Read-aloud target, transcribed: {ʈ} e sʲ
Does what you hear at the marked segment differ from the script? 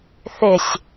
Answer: yes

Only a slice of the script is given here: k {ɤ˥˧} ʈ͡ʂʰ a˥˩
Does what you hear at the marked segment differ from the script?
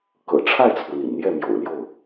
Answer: yes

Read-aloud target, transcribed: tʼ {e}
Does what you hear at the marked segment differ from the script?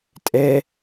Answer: yes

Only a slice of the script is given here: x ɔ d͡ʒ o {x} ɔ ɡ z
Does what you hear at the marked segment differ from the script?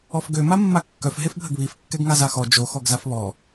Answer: no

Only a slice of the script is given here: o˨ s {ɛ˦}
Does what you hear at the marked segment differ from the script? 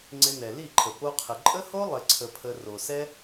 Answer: no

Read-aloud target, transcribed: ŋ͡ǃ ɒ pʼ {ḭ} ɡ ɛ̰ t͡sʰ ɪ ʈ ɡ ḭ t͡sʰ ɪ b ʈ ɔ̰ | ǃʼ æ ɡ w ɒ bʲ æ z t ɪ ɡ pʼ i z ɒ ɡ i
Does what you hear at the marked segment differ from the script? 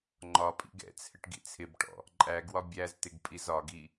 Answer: no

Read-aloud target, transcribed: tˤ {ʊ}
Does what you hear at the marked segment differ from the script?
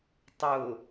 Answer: no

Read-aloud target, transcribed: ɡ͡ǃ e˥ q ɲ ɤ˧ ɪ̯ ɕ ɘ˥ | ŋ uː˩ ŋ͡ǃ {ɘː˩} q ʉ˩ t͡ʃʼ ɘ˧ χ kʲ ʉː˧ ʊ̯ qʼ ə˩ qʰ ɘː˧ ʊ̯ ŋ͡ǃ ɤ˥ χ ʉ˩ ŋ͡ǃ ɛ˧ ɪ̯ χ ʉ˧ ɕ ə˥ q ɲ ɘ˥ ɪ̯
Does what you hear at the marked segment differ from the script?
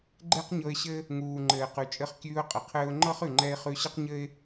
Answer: no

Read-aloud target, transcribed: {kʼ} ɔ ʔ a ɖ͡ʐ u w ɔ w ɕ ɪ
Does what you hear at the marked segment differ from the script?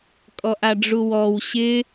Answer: no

